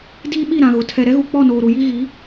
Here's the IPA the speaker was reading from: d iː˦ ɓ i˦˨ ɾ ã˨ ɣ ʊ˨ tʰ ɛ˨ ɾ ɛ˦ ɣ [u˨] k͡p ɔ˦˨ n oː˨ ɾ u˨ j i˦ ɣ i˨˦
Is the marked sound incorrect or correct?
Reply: correct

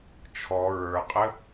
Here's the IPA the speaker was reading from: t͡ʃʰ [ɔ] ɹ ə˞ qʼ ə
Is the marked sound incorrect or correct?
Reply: correct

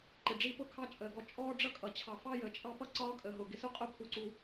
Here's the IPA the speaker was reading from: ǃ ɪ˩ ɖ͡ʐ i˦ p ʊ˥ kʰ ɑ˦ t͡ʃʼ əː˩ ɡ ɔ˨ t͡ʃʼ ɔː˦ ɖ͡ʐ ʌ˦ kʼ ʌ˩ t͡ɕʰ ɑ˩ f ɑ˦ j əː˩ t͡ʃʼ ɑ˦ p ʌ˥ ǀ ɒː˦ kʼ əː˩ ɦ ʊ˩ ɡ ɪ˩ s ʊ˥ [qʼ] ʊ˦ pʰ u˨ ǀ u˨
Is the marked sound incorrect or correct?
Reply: correct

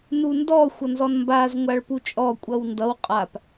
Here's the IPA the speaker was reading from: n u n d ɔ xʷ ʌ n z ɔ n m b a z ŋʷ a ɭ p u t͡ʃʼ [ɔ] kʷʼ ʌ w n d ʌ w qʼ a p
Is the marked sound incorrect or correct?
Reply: correct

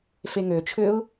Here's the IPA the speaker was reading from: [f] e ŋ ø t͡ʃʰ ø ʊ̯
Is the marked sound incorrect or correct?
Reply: correct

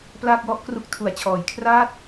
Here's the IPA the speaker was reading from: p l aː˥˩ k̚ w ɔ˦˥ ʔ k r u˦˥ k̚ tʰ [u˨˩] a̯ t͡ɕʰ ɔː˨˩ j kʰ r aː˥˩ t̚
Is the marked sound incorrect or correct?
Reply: correct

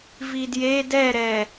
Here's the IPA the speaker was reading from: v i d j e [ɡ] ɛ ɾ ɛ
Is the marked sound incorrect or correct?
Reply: incorrect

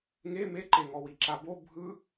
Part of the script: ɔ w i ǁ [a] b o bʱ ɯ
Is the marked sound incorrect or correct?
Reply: correct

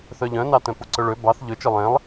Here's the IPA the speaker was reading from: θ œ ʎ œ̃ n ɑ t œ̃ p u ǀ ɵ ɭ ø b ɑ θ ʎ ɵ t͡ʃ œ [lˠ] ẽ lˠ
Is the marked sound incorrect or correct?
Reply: correct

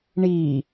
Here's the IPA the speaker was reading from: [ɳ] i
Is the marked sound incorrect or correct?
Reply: correct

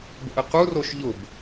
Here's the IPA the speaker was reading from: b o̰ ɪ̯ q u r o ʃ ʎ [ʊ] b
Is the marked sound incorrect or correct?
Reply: correct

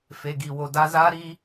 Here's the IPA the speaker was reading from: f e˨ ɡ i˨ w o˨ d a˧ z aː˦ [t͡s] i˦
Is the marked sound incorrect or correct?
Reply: incorrect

